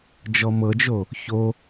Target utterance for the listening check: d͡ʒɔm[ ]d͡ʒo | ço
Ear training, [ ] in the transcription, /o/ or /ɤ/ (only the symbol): ɤ